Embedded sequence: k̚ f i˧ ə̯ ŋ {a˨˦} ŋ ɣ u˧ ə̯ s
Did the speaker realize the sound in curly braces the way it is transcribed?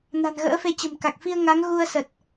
yes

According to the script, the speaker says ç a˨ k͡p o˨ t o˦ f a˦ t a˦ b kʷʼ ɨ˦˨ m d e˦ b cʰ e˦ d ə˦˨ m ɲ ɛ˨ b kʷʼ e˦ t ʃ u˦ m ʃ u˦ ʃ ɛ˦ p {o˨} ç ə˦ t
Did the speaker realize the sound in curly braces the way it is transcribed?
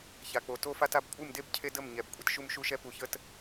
no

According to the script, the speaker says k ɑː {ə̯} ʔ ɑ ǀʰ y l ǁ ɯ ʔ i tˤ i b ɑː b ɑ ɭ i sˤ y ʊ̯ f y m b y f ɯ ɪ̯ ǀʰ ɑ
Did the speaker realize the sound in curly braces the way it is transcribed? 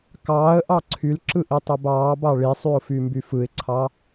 yes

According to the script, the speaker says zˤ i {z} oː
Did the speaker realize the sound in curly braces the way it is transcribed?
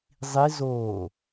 yes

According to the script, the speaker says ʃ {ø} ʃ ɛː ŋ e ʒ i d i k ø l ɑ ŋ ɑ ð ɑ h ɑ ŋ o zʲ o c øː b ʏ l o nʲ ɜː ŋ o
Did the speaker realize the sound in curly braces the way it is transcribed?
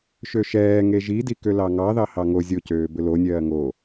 yes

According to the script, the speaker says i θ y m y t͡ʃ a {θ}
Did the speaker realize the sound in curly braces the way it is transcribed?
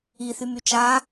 no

